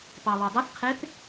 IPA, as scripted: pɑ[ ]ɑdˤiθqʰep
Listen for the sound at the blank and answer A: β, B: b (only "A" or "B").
A